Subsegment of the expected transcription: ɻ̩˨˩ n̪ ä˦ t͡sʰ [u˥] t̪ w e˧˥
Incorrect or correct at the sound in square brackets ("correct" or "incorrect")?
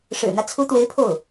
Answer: incorrect